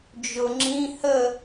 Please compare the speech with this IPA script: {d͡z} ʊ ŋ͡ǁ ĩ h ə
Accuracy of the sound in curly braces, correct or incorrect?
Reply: incorrect